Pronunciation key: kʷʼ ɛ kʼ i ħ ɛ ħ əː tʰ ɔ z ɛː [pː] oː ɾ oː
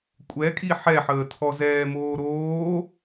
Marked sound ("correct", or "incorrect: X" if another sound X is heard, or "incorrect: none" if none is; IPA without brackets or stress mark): incorrect: m